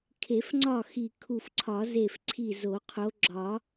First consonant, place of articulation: velar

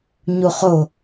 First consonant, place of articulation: palatal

